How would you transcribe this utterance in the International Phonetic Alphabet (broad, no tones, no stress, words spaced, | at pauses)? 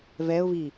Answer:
vɛʊ̯vi